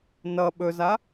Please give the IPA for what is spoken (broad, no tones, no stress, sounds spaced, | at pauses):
n ʌ ɓ ɵ z a